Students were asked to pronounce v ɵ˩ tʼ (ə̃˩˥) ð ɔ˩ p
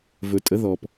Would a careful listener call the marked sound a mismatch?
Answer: yes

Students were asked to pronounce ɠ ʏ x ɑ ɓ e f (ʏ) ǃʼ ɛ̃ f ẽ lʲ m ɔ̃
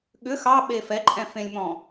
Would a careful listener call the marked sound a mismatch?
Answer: yes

